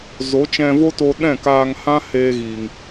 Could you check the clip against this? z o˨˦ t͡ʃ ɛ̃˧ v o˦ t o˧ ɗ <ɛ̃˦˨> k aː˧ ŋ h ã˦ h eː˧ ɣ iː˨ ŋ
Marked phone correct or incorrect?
correct